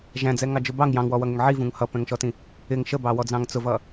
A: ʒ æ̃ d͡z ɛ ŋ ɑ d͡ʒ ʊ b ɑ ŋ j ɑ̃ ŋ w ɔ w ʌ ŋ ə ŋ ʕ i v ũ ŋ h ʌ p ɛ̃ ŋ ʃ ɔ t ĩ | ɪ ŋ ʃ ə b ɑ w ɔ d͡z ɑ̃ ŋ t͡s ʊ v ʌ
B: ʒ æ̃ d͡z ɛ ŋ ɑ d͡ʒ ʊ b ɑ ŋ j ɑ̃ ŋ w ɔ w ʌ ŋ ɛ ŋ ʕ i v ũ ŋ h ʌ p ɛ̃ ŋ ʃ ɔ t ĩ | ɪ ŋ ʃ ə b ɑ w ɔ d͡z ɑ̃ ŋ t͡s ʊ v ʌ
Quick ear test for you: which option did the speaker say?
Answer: B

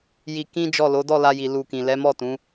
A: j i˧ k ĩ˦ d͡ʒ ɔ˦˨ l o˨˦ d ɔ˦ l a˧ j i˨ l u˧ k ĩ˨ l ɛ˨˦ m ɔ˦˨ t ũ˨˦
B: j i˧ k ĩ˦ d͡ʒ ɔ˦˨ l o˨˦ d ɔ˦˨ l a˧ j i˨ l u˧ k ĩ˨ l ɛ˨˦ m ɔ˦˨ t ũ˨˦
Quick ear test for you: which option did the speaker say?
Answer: B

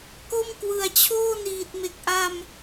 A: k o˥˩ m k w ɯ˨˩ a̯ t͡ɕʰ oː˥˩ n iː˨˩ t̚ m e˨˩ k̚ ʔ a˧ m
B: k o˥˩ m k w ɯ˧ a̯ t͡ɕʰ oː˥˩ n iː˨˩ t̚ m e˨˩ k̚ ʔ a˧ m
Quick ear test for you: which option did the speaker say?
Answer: A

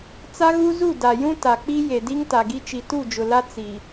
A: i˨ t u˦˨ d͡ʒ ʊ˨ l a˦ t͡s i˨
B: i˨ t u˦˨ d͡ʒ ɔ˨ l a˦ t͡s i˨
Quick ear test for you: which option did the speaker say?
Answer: A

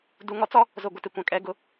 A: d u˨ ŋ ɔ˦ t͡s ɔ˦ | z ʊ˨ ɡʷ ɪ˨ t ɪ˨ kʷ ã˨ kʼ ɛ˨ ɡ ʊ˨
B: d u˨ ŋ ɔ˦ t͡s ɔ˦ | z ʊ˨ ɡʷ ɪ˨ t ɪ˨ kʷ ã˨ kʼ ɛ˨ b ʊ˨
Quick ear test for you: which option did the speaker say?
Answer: A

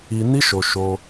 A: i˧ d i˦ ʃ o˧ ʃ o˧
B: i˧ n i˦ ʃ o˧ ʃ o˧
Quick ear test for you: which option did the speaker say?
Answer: B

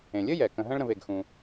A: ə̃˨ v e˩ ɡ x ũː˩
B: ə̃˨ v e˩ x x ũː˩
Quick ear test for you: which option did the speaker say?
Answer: A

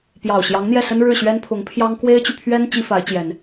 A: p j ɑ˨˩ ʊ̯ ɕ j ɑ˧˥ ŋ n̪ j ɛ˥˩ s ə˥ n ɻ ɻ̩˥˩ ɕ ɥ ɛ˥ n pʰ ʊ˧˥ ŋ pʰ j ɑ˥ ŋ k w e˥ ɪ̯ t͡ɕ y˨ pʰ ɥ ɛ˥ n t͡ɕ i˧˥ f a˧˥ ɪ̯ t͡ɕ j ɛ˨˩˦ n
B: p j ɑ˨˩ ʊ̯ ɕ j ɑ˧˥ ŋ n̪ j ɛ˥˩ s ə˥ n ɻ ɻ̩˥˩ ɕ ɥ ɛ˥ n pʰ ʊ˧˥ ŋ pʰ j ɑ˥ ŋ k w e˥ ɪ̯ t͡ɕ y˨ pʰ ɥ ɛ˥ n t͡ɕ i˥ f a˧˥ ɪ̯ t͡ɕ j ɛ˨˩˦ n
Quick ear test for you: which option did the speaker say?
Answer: B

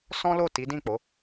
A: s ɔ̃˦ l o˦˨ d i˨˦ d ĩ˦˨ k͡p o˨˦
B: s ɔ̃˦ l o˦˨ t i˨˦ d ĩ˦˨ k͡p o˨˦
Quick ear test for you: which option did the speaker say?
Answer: B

